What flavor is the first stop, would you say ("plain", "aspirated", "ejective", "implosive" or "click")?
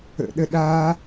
implosive